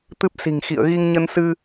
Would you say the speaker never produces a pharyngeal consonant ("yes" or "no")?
yes